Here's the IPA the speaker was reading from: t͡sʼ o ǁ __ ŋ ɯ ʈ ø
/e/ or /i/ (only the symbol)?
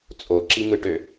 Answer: i